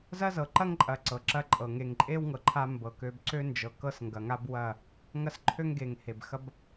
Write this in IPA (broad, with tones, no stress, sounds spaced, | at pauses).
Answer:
z ɐ˦ z ɤ˨ ǃ ɐ˦ ŋ ǃʼ ɐ˨ ǀ ɤ˨ ǁ ɐ˦ ǃʼ ɤ˨ ŋ e˨ ŋ ǃʼ e˦ w ŋ ɤ˨ ǃʰ a˦ m b ɤ˨ k ø˨ b ǀ ø˦ n d͡ʒ ɤ˨ k ɤ˦ s ŋ ɡ ɐ˨ ŋ a˦ b w ɐ˦˨ | ŋ ɐ˦ s ǃʰ ø˦ ŋ ɡ e˨ ŋ h e˨ b x ɐ˦ b